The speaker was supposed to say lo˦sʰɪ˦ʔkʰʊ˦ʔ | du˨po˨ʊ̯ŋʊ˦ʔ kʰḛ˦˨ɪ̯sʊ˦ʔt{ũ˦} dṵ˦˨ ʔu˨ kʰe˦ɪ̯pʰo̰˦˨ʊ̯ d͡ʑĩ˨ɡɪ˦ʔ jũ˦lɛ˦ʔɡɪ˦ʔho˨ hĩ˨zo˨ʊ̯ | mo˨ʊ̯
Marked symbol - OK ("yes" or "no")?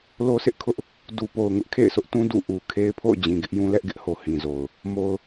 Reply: yes